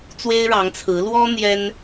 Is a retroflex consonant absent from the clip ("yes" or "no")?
no